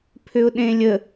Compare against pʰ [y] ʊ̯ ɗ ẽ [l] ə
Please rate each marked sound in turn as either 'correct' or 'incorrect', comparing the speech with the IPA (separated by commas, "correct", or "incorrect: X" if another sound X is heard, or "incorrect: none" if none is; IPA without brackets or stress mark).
incorrect: ʏ, incorrect: lʲ